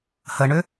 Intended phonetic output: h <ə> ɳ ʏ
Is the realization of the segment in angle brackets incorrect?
no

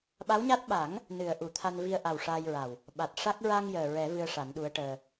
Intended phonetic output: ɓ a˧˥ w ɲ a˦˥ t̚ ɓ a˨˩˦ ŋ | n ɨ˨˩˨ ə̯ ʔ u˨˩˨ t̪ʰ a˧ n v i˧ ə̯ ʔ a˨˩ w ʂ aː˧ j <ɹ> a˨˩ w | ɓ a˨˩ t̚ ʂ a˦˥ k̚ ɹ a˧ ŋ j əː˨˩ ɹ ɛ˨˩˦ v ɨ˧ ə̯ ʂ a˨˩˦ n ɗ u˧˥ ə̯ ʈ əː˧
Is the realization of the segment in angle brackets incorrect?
no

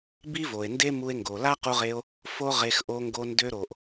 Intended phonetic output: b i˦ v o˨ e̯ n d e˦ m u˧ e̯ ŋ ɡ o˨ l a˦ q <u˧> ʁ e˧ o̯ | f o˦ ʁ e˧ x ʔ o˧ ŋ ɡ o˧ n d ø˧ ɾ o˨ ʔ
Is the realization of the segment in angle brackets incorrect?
no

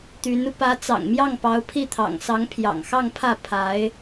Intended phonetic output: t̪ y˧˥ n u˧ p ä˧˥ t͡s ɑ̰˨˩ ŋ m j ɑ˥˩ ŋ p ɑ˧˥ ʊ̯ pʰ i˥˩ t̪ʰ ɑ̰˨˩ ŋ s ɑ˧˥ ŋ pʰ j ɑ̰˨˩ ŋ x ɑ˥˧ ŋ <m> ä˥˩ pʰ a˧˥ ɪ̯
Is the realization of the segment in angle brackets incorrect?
yes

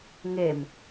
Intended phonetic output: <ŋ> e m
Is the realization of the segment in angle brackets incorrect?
no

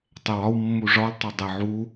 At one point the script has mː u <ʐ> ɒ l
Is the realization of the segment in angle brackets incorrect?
no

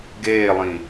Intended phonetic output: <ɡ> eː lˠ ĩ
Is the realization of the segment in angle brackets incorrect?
no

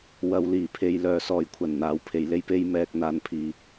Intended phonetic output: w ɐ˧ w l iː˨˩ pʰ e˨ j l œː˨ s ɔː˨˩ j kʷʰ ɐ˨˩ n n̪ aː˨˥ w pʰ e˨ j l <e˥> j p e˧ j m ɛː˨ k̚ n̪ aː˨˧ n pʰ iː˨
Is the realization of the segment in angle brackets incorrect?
no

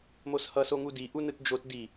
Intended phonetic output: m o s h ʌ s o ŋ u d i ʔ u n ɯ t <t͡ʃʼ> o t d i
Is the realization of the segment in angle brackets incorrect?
yes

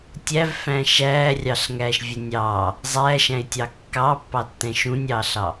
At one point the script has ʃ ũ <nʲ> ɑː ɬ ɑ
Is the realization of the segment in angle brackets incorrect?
no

